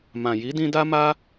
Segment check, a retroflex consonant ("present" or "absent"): absent